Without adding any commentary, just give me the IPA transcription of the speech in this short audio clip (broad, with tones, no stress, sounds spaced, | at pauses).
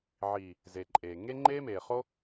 ʕ iː˨ | z e˨ ǃʼ eː˨ ŋ e˦ ŋ͡ǃ e˦ m eː˨ χ o˦